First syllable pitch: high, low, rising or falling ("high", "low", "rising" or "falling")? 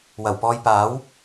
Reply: low